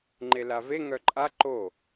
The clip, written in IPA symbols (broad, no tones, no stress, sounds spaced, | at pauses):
ŋ͡ǃ e l a v e ŋ œ ǃʼ a ǃ o